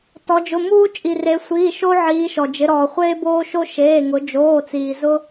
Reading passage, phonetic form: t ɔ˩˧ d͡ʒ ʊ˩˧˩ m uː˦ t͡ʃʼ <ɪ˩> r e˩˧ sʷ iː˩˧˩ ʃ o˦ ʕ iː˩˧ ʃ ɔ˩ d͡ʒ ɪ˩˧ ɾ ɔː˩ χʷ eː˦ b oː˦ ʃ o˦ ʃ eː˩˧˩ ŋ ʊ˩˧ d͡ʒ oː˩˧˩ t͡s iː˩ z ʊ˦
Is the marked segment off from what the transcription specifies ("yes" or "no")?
yes